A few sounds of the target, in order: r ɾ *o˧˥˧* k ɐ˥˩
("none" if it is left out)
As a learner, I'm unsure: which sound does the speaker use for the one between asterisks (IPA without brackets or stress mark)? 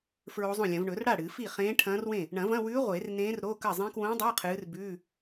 o˧˥˧